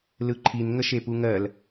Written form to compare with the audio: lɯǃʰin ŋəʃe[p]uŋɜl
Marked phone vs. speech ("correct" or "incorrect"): correct